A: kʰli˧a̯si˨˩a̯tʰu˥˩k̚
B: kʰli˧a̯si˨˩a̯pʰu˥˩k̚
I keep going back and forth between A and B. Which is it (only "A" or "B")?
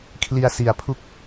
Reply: B